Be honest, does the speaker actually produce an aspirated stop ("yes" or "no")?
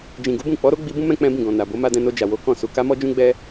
no